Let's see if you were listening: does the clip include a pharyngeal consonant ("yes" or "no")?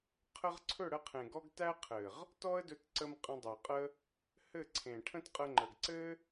no